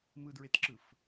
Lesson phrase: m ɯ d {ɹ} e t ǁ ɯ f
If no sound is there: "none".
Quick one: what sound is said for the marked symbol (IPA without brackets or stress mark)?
ɹ